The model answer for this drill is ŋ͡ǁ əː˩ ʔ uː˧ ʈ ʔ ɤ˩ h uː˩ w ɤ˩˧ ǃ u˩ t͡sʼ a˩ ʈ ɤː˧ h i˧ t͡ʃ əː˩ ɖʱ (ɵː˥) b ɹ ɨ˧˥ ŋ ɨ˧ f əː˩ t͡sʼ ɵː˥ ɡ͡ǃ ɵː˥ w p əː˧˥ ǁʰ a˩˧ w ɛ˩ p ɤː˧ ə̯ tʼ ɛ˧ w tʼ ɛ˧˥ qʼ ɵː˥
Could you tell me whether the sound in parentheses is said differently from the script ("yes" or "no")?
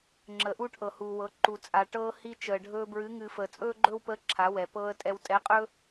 yes